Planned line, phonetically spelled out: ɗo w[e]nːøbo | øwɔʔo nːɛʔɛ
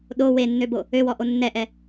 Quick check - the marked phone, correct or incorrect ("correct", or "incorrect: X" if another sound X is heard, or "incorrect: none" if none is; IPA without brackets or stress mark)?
correct